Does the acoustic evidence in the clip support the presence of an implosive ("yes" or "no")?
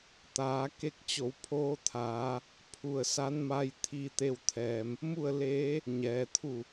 no